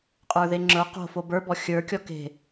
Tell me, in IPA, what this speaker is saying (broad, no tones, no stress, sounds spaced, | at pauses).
qʼ ə˞ ð e ŋ͡ǁ ə˞ q o̤ f o b ə˞ b ɔ xʲ ə˞ kʲ ɔ k e̤